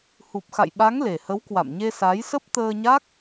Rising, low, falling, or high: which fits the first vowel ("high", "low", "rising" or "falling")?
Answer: low